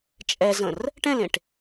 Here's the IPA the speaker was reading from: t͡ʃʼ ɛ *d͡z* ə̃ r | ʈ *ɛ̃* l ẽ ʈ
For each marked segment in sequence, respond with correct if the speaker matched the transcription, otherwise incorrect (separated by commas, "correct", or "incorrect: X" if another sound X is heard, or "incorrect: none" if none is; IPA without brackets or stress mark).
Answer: incorrect: z, correct